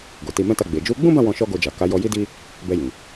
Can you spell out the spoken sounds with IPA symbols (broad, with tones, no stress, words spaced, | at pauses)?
ɡo˨ti˧mɛ̃˦ta˦˨ ɡ͡be˨ d͡ʒu˨˦ɡ͡bũ˦bã˦˨ wɔ̃˧ ʃɔ˦ɡo˧d͡ʒa˨ ka˨˦ jɔ˧ji˦di˦ | bɛ˧jĩ˨